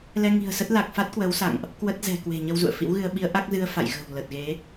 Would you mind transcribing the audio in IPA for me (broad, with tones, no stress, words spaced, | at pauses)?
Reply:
lɛ˧ŋi̤˨˩ə̯sə˦˥t̚ la˨˩k̚ fa˦˥t̚kwə˨˦wsa̰˧˨ŋʔ | kwə˦˥t̚zɛ̤˨˩kwe̤˨˩ ɲə˧wzṵ˧˨ə̯fḭ˧˥wɣɨ˧ə̯ ɓi˨˦ə̯ ʔa˦˥k̚zɨ˧ə̯fa̰˧˨jɣə̤˨˩w lə˨˩t̚ɣe˨˦